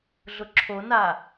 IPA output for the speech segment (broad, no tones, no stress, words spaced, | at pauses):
ɮʊǁʰona